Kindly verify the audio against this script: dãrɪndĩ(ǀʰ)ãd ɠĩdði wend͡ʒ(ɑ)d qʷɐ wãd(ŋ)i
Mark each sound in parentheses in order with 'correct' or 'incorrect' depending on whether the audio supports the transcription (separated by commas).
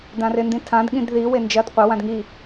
incorrect, incorrect, correct